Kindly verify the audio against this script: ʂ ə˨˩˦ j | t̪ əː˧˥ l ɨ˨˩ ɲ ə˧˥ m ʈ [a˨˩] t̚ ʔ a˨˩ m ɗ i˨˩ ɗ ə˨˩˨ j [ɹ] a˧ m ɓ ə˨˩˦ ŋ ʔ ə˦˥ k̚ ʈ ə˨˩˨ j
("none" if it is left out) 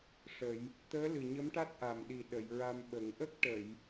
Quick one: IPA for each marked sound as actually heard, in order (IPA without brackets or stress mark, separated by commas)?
a˦˥, ɹ